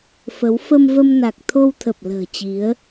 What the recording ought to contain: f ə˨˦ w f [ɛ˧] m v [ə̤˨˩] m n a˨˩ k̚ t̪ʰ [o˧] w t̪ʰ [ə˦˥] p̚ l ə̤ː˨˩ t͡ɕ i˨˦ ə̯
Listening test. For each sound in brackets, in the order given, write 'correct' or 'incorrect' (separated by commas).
incorrect, incorrect, correct, incorrect